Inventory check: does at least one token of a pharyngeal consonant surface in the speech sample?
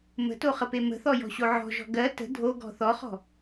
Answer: yes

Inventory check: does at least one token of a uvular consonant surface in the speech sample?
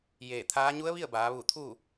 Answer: no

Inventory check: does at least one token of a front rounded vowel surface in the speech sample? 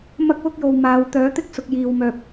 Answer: yes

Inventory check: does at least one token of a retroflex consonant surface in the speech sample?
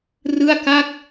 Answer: no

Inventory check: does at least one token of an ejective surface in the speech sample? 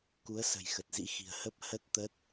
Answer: no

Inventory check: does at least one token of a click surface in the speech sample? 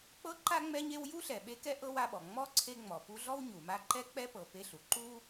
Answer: yes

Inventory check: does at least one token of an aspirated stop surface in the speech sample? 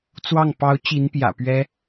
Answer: no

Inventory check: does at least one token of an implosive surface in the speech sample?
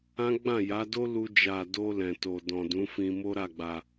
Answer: no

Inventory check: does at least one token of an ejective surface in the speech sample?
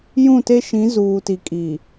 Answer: yes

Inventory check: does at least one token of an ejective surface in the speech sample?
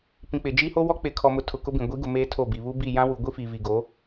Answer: no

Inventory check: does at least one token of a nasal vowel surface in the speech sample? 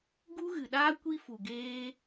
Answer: no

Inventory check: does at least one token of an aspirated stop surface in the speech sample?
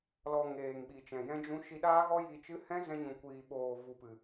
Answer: no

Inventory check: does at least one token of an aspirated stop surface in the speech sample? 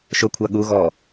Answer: yes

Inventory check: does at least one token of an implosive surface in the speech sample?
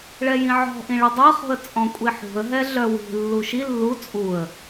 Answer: no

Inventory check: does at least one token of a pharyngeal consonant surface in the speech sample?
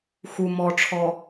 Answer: no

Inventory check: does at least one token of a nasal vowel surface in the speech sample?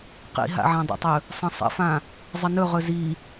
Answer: yes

